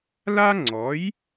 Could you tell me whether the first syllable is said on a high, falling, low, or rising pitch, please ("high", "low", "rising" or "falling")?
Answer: high